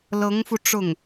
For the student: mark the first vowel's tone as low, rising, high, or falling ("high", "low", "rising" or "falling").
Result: rising